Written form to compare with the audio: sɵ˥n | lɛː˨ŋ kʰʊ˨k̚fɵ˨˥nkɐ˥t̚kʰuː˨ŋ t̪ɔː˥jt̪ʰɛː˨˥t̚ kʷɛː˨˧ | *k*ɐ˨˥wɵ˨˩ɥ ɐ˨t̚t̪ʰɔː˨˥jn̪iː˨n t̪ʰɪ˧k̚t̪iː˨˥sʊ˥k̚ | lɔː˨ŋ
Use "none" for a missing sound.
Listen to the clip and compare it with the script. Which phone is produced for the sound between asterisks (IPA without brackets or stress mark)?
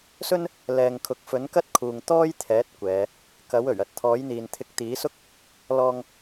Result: k